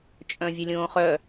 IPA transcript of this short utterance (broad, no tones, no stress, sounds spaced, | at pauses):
t͡ʃʼ œ̃ vʲ ʊ lʲ õː χ œ